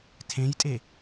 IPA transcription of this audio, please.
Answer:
tʰ ẽ j tʼ e

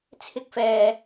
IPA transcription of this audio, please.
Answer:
t͡sʰ ɪ˥ k̚ f ɛː˧

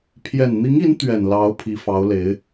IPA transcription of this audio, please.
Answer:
pʰ j ɛ˨˩ n n̪ i˧˥ ŋ i˧˥ n t̪ ɥ ɛ˨˩ n l ɑ˧˥ ʊ̯ pʰ i˧˥ f ɑ˧˥ ʊ̯ l e˧˥ ɪ̯

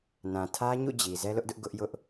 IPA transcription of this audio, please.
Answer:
n ã˨ tʰ ä˦ ɲ ṵ˦˨ d͡ʑ i˨ z ɛ˦ l ʊ˦ ʔ d ʊ˦ ʔ ɡ ʊ˦ ʔ j ʊ˦ ʔ

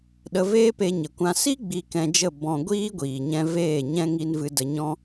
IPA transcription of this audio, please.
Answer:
ɗ ə˧ v eː˦ p e˧ ɲ ə˨ kʷ ã˧ s i˦ ɡ͡b i˧ k ɛ̃˧ d͡ʒ ə˦˨ b ɔ̃˧ ɡʷ iː˦ ɡʷ iː˨ ɲ ɛ̃˧ v eː˦˨ ɲ ɛ̃˦ ŋ i˧ n v ɨ˧ d ə˧ ɲ ɔ̃˦

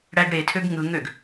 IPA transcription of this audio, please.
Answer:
ɽ æ ɡ ɽ e tʰ ø ɡ ŋ ɯ ŋ ø ɡ

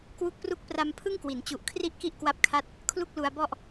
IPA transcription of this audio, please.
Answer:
k w u˦˥ k̚ p r u˦˥ k̚ p r a˧ m pʰ ɯ˥˩ ŋ k w i˩˦ n t͡ɕ u˨˩ ʔ kʰ r i˥˩ ʔ k i˥˩ ʔ k w a˦˥ p̚ kʰ a˦˥ t̚ | kʰ l u˥˩ k̚ l u˧ a̯ b ɔ˥˩ ʔ

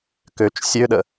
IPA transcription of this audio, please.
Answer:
k ø t͡ʃ sʲ ø ɗ ə

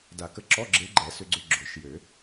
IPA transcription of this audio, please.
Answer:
d a˨˩˦ k ə˧˥ ǁ ɔ˧˥˧ ɡ͡ǁ e˧˥ ɡ͡ǃ ɛ˨˩˦ s ʏ˧ ɡ͡ǀ ʏ˧ ɡ͡ǁ ʊ˨˩˦ ʃ j ø˨˩˦

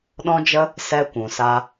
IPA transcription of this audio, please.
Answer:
ɗ ɔ̃˦ d͡ʒ ə˦ | s ɛ˧ kʷ ũ˨ s a˧

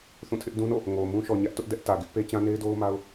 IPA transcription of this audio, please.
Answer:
θ ũ˦˨ tʰ ɪ˦ ʔ d ũ˦ n o̰˦˨ | ŋ o˨ m ũ˦ ʃ ɔ˨ ɲ ä˦ ʔ t ʊ˦ ʔ d ɛ˦ ʔ t ä˨ ɡ ɪ˦ ʔ p e˦ t͡ɕ ã˦ n e˦ ɪ̯ d o˦ ʊ̯ m a˦ ʊ̯

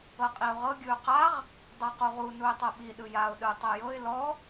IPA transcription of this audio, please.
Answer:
ɤ qʼ i ʊ̯ ʁ ɤ ɡʲ ɯ ʊ̯ q a ʁ | dˤ a q u ʁ u n u ɪ̯ tˤ ɤ ɓ i ɗ ɯ j a ʊ̯ ɗ ɯ tˤ ɛ j ɤ ɪ̯ l ɔ

